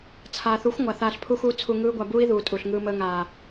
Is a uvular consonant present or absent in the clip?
absent